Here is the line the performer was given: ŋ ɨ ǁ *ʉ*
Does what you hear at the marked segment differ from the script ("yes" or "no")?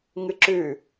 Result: no